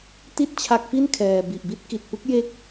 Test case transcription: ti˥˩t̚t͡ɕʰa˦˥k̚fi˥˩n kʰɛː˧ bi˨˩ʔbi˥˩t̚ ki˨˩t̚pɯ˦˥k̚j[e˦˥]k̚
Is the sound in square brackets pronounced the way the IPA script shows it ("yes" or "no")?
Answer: yes